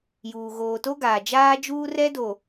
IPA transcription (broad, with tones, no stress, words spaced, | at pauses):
juː˨ ɣoː˨to˦ɡaː˨ d͡ʒaː˦d͡ʒuː˦rɛ˦do˨